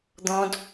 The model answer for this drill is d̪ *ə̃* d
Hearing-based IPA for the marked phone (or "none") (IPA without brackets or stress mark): ɔ̃